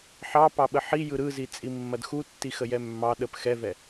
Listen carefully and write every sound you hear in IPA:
ħ ɑ p ɑ ɓ ə ħ i j ɯ ɾ ɯ z i t͡sʼ i mː ɐ d x u tː i x ə j ɛ mː ɑ ɗ ə p x ɛ v ɛ

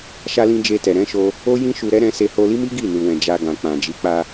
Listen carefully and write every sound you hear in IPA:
ʃ a˧ l ĩ˧ d͡ʒ e˧ t ɛ˨ ɾ ɛ̃˨˦ ʃ o˧ | o˦ j ĩ˦ ʃ u˧ ɾ ɛ˦ ɾ ɛ̃˧ s e˧ h o˧ l i˦ m i˦ ɡ i˦˨ n u˨ w ɛ̃˨ d͡ʒ a˧ ɡ ã˨ k͡p ã˨ d͡ʒ i˨˦ k͡p a˧

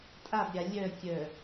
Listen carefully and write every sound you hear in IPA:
tʼ a b ɾʲ a lʲ œ kʲ œ

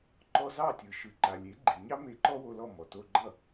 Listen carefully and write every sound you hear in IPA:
ǃ ɔ˧ z ɑ˥˩ tʲ ɯ˩ ʃ ɯ˩ ǃ a˩ lʲ e˩˥ ɡ͡ǃ i˩ ɲ ɑ˥ m e˧ ǃ ɔ˥ w o˧ l ɔ˥˩ m ɔ˩ t o˧ ɡ͡ǃ ʌ˥˩

